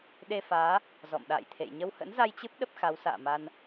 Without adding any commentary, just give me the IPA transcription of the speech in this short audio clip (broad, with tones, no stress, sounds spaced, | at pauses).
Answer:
ɗ e˧ f aː˨˦ | z ɔ̰˧˨ m ɗ a̰ː˧˨ j t̪ʰ ḛ˧˨ j ɲ ə˧ w h ə̰˧˥ n z a˧ j t͡ɕ ɨ˦˥ p̚ ɗ ə˦˥ p̚ x a˨˦ w s a̰ː˧˨ m a˧ n